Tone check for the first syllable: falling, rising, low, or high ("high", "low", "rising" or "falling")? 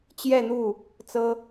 falling